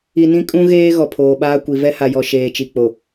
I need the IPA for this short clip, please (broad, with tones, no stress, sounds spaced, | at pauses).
i˨ n ĩ˦ kʼ ũ˦ ɣ eː˦ ɣ ɔ˨ pʰ oː˨ ɓ aː˦ kʷ i˨ v ɛ˦ h a˨ j ɔ˨ ʃ eː˨ t͡ʃ i˨ k͡p o˨